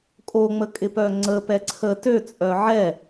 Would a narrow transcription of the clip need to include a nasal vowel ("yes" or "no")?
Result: no